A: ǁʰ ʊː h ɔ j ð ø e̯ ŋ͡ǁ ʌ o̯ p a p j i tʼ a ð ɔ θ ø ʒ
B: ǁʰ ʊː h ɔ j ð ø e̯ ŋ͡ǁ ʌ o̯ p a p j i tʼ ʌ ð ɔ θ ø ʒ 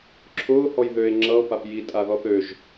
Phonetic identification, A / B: A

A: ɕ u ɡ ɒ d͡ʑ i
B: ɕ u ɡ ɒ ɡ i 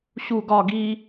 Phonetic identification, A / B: B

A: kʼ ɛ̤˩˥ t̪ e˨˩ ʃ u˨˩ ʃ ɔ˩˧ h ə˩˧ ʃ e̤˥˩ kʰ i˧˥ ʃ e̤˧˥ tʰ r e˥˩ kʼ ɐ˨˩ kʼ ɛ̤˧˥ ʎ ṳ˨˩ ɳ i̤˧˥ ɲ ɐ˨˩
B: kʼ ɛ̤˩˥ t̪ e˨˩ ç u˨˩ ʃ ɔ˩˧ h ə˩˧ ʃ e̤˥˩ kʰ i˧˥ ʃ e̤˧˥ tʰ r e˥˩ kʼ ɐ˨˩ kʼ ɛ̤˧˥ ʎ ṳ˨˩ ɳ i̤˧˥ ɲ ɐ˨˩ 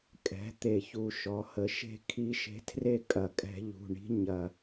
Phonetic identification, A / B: B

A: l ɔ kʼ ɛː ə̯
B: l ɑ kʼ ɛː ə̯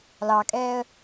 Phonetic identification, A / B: B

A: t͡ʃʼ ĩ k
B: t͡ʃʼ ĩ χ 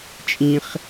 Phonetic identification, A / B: B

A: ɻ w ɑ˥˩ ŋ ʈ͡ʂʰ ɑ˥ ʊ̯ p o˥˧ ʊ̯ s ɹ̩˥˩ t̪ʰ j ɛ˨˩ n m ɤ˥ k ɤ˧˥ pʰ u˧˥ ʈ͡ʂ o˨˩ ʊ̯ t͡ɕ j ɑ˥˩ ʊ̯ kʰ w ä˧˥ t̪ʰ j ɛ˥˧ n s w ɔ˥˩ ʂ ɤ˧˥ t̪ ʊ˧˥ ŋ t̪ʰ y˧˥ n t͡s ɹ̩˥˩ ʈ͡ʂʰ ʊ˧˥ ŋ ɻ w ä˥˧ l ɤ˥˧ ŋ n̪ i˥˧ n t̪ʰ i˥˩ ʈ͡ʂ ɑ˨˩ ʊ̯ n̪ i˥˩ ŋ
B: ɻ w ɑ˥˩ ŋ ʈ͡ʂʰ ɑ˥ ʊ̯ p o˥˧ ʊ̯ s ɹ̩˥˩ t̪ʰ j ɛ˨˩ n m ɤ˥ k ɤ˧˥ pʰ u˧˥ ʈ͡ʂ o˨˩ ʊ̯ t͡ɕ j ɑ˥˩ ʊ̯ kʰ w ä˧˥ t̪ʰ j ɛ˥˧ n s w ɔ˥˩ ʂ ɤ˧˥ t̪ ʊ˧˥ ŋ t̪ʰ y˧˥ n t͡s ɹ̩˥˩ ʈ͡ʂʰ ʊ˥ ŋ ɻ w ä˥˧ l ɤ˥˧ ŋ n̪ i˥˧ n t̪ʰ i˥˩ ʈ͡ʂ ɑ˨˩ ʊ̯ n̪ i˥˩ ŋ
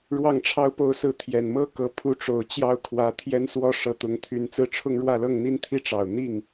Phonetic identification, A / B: B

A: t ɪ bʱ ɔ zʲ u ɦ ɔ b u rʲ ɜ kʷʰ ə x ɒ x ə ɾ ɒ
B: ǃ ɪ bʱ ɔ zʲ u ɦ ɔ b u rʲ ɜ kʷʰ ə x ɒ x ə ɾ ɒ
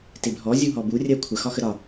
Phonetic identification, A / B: A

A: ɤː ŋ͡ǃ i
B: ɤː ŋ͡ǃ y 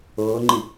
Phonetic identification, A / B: A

